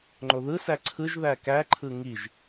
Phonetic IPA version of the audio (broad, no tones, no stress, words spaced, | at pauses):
ŋ͡ǃoðɯsæ ǀʰɯʒðæ kæǃʰɯ ŋiʒ